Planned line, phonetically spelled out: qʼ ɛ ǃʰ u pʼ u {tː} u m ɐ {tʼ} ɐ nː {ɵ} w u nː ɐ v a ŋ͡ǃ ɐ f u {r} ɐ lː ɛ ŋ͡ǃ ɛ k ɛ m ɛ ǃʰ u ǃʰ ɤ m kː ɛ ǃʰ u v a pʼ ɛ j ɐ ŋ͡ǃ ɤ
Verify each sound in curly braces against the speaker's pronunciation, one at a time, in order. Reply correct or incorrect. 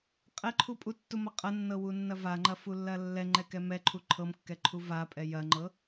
correct, incorrect, incorrect, incorrect

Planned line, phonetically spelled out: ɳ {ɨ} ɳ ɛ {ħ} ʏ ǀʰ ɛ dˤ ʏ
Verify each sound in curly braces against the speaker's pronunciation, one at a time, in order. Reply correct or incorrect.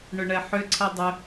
incorrect, correct

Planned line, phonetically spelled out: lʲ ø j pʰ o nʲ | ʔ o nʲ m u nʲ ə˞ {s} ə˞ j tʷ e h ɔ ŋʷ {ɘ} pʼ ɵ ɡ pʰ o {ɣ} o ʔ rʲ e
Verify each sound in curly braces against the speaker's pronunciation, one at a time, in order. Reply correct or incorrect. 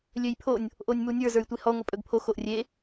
incorrect, correct, incorrect

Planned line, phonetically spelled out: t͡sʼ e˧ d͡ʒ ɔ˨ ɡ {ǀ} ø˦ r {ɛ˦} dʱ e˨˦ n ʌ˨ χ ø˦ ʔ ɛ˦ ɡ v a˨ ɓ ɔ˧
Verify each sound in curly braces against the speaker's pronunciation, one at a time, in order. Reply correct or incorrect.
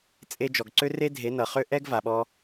correct, incorrect

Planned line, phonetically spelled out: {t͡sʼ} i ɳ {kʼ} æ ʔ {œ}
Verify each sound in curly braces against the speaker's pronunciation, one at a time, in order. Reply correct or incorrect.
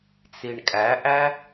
incorrect, correct, incorrect

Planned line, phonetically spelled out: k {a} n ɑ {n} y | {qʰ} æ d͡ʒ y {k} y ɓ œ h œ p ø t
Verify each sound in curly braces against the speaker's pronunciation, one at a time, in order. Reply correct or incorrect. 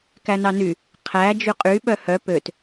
incorrect, correct, correct, incorrect

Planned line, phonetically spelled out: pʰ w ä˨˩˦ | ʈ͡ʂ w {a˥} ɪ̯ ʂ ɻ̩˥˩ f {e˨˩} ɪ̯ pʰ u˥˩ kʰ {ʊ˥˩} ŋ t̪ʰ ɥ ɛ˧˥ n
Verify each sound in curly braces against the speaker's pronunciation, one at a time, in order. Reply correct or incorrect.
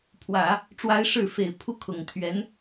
correct, correct, incorrect

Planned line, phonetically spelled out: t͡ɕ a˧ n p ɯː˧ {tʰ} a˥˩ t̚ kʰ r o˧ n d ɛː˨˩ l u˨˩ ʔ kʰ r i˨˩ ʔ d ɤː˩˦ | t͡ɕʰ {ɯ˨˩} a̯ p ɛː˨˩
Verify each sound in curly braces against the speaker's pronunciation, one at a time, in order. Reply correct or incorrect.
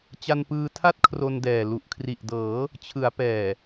correct, incorrect

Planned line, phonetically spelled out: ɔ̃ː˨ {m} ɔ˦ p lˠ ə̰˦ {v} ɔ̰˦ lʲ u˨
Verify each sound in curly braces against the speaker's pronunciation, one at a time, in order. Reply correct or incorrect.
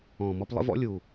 correct, correct

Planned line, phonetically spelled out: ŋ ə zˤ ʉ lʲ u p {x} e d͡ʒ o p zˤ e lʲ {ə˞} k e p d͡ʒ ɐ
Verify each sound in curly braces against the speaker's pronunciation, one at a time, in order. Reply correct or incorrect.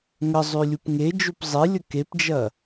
incorrect, incorrect

